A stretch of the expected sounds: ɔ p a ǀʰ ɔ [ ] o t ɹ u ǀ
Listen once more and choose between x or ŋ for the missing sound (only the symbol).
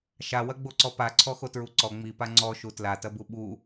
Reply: x